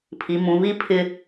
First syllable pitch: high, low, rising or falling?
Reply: low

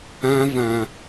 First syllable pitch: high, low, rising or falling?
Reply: high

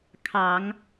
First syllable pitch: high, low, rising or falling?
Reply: low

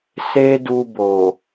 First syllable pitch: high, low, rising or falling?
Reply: high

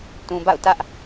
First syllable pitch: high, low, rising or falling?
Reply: low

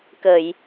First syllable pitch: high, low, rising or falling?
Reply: low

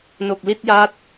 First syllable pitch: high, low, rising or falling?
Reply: low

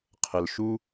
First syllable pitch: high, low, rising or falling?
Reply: low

